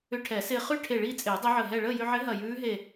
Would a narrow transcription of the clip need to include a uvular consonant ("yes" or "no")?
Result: yes